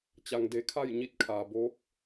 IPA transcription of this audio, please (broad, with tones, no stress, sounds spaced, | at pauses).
t͡ɕ a˩ ŋ d e˩˧ kʰ a˥˨ j ɲ i˧ t̚ kʰ aː˩ b oː˧˥ k̚